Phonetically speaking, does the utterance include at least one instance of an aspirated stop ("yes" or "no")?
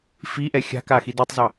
no